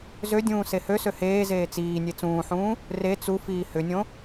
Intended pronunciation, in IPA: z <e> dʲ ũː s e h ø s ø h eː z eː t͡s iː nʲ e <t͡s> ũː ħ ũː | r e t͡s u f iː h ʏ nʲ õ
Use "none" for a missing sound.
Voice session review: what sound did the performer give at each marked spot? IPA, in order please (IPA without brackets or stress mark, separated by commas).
ø, t͡s